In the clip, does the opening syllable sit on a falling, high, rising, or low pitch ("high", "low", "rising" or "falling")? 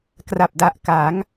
low